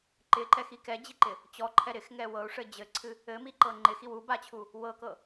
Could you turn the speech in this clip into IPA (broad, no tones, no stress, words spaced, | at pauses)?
ǃɪǃɛxi kɛd͡ʑiǃɪ | t͡ɕɔǃʰɛ ɾɪxŋɛ wɤu̯ʂɘ d͡ʑɘǀʰɨ | ɘmiǃɤ ŋ͡ǃɪxiw ubat͡ɕʰu | wɤkɤ